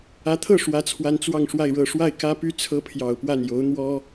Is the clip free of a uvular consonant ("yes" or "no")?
yes